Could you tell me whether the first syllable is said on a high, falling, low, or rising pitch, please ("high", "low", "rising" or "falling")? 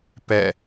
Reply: falling